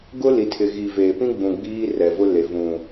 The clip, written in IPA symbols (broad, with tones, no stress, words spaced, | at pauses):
ɡʊ˦ li˨tʰɪ˨ɣi˨ veː˨pĩ˦ɡ͡bũ˨ ɡ͡biː˦ rɛ˨vʊ˦le˨ vũ˨